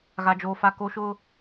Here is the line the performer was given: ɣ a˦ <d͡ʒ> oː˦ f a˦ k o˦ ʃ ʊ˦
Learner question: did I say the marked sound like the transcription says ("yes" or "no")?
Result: yes